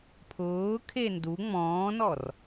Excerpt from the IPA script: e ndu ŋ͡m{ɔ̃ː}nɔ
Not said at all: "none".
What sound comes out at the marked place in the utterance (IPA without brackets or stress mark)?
ɔ̃ː